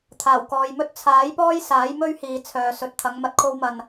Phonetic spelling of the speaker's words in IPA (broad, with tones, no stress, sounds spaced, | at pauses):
t̪ʰ aː˨˩ w k ɔː˨ j m ɵ˥ t̚ t͡sʰ aː˨˥ j p ɔː˥ j s aː˨˥ j m ɵ˥ ɥ h iː˨ t͡sʰ œː˨ s ɵ˨˥ t̚ t̪ʰ ɐ˨˥ ŋ m ɐ˧ t̚ kʰ o˥ w m ɐ˧ n